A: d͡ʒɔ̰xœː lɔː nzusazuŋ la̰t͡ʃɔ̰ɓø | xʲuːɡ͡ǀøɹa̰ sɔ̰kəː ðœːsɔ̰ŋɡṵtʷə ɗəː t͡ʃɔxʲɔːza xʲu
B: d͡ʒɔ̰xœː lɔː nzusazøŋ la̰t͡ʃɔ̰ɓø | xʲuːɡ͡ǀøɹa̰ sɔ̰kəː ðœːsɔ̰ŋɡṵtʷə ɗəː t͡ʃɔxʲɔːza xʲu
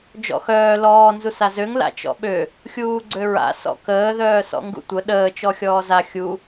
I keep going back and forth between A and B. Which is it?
B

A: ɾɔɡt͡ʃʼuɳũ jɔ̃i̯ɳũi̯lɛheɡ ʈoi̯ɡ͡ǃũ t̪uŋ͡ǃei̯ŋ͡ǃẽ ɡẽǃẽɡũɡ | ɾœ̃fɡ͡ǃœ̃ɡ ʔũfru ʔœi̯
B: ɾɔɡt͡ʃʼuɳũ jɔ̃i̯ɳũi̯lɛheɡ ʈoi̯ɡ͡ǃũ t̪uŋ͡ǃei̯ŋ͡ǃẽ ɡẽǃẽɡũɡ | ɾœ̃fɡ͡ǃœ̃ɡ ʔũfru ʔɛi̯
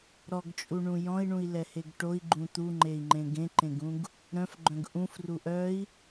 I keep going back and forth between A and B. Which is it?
A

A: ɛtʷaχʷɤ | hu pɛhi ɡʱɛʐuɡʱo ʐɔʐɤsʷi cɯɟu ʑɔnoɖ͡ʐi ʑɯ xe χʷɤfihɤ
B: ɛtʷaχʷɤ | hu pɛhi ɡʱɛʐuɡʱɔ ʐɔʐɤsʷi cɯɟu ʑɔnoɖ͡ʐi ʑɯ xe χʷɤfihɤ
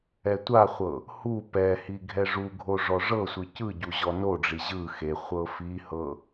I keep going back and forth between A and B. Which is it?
A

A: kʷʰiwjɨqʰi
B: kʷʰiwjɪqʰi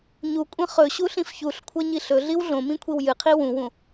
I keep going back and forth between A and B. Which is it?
A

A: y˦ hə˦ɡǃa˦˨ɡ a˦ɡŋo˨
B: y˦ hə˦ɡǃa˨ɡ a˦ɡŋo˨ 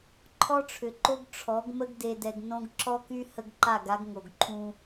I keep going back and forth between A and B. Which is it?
A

